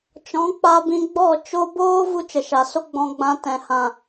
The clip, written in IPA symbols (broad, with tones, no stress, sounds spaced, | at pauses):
t͡ʃ ɔ̃˨˦ k͡p a˧ b ĩ˧ ɡ͡b ɔ˦˨ t͡ʃ o˧ b oː˦ v u˦ t͡ʃ ə˨ ʃ a˨ s o˦ ɡ͡b ɔ̃˧ ɡ͡b ã˧ t ɛ̃˨ h ã˨